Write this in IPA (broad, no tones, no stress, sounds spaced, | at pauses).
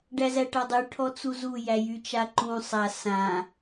ɖ æ z æ ʈ a dˤ y ʈʰ ɔ t͡s u z u j æ j y t͡ʃ a ǃ ũ sˤ a s ã